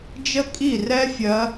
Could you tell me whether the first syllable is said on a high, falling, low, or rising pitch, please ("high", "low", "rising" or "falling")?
high